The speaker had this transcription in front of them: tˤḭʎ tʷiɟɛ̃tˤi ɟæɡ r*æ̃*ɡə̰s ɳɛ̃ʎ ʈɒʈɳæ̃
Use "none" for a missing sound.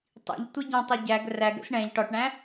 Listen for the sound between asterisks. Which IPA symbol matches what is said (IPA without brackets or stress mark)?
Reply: æ